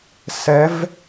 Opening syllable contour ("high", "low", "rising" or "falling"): rising